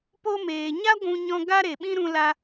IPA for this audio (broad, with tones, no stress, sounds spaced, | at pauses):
p o˧ m eː˨ ɲ a˦ ɡʷ ũ˧ ɲ ɔ̃˧ ɡ a˦ ɾ e˨ ɓ ĩ˦ ɾ ũ˧ l a˧